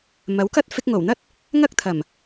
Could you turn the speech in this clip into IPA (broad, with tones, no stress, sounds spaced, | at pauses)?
m ɐ˨˥ w k ɐ˥ t̚ f ɪ˧ k̚ ŋ o˨˩ w n̪ ɐ˥ t̚ | ŋ ɐ˥ k̚ t̪ʰ ɐ˨˩ m